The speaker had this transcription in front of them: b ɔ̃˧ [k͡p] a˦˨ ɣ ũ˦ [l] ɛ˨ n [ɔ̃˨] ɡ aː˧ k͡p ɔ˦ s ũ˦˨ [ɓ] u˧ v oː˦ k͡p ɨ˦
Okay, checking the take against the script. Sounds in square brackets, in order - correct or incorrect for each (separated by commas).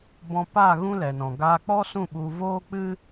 incorrect, correct, correct, correct